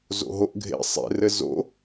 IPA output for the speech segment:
z o̰ ɦ o ʔ ɡʱ ḛ sˤ ḛ r ɘ z o̰

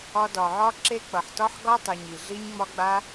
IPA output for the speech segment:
ɒ˧ d ɒ˨ ʕ ɒ˦ ǁ e˦ k͡p ʌ˨ ħ t ɒ˦ ħ ɡ ɒ˦ tˤ ɛ˨ ɲ i˨ ɮ i˦ ɲ ŋ͡m ɒ˦ ɡ͡b a˦

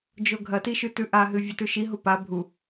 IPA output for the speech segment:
d͡ʒ o ɡʱ ɐ t i ʃ ʉ t ʉ ʔ a ɦ ɨ vʲ ɐ t ʉ ʃ i ɦ u p a bʱ u

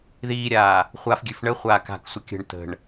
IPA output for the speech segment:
ð iː ɾʲ aː | χʷ a f ɡʲ ʉ f ɳ ə χʷ aː k a̤ k sʷ ə kʲ ə̤ ɳ t ə̤ ɳ

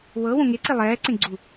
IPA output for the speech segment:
w ɤ w õ ŋ e ǀ i lˠ ɛː ǀ ẽ ɡ͡ǀ u

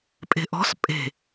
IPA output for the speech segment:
pʼ e̤ ʔ ɔ̤ s pʼ e̤

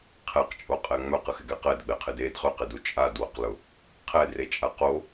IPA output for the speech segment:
qʰ ɛ q t͡ʃʼ o qʼ ɛ ŋ͡m œ q ə x ɪ ɡ ɛ q ɛ d ɡ͡b ɛ qʰ ɪ d e d χ ʏ q ɪ d u t͡ʃʼ a d w ʊ q l ʊ | qʰ ɛ d r e t͡ʃʼ a q o

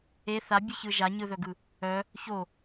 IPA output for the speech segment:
e θ a bʲ ɨ ç ɯ ʒ a ɲ ɯ ð œ ɡ ɯ | œ | ç o

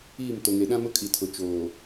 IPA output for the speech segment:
iː˦˨ m t o˨ ŋ e˨ ɗ ã˦ m ʊ˦ kʼ i˨ tʰ ʊ˨ t͡ʃ oː˨

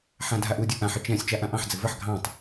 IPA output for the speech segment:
ħ ã dʱ a ʔ u dʲ u ʔ ã ħ ɪ t͡ʃ ɛ̃ sʲ t͡ʃ a ʔ ã ʔ ɑ̃ ħ d͡z ɘ v ə ħ ɡʱ ɑ̃ tˤ

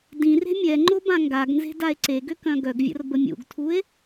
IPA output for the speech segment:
d ĩ r e̤ mʲ ɛ ŋ͡ǃ o b ã ŋ ɡ a ɡ n z e̤ d a e̯ ǀ e ɡ ø k œ̃ ɡ œ ɡ vʲ ə̰ r b ə mʲ ṵ ɡ tʰ u e̯

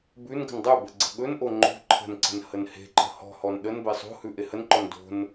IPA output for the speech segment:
b ʉ n ɡ ə̤ n dˤ ɵ b ə ɡ͡ǀ ə̤ ɠ ɵ n ʔ o ŋ͡ǃ o̤ ǃʰ ə̤ n ǀ ə̤ n h ə n h e̤ ǃ ə̤ h ɔ̤ h ɔ n ɗ ə n b e sˤ o̤ h ʉ ʔ e h ə n ǃ ɔ n d o̤ n

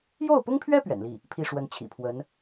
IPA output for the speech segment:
j o˥˩ ʊ̯ p ʊ˥ ŋ pʰ ɥ ɛ˥ p ɥ ɛ̰˨˩ n l i˥˩ | pʰ i˥˩ ʂ w ə˧˥ n t͡ɕʰ ḭ˨˩ pʰ w ə˧˥ n

